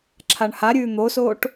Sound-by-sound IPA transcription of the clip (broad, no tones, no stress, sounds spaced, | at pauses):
ǁʰ a ɳ h a ɾʲ ʉː n̪ o s o ʈ